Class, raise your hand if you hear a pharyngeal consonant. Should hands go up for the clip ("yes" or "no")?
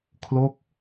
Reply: no